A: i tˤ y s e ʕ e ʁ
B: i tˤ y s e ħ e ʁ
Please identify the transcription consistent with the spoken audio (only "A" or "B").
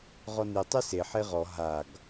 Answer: B